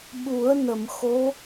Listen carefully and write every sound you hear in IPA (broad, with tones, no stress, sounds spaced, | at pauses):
ɓ u˨˩˦ ə̯ n ə˨˩˨ m x o˧˥